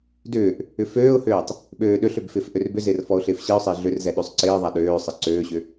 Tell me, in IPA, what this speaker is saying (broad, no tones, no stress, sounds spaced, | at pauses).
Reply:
d ʏː ʔ | ʏ f øː ʊ̯ h øː tˤ | ɓ øː ɗ ø ɬ ø b f ɪː f ʔ ø r b ʏ z ɪː r f ɔ ʊ̯ ɬ ɪː f ɕ i ʊ̯ sˤ ɪː ɮ ʏ r z ɛ ɗ ø sˤ ǀ ɪː ðˤ a ɗ øː sˤ ɪ ǀ øː ɕ ʏ